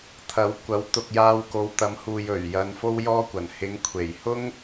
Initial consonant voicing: voiceless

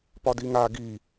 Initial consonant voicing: voiceless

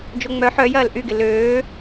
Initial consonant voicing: voiced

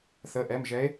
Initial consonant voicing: voiceless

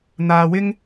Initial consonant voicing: voiced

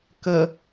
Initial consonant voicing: voiceless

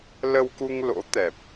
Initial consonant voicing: voiced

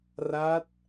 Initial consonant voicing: voiced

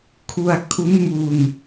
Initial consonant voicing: voiceless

